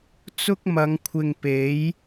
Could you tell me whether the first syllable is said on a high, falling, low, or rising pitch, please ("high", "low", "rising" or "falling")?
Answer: high